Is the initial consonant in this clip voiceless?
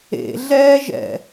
no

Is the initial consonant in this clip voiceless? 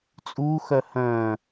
yes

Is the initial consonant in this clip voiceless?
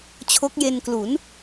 yes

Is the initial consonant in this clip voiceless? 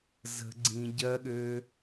no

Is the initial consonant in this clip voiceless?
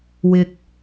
no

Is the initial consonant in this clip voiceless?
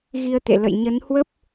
no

